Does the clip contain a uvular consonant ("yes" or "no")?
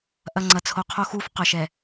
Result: yes